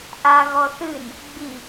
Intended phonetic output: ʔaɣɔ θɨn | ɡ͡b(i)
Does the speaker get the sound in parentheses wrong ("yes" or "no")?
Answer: no